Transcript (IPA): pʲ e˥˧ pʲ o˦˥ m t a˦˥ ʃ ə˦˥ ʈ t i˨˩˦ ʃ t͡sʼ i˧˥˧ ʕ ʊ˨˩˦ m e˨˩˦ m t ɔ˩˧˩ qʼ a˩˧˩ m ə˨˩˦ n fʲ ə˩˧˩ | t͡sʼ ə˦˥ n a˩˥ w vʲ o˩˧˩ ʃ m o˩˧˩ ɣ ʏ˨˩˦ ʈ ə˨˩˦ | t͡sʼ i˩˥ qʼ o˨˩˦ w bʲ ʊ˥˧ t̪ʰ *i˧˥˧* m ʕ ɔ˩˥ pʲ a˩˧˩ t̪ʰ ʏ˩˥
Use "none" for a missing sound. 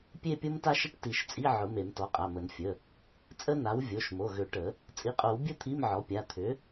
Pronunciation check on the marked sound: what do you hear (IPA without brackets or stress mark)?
i˧˥˧